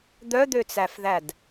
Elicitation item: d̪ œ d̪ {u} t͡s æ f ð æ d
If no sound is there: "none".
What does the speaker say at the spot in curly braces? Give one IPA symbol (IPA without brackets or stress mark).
ø